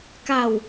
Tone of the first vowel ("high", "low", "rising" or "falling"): low